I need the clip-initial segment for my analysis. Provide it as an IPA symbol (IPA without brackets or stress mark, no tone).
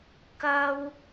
k